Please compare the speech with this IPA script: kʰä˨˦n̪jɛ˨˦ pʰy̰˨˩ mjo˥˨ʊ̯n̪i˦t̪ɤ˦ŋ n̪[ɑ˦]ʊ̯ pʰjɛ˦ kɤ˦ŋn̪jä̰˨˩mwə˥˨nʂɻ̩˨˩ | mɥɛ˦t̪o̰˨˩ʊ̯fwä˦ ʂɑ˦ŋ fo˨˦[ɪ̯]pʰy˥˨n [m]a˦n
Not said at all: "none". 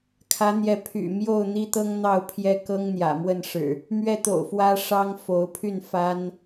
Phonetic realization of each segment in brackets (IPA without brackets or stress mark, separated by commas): ɑ˥˨, ʊ̯, f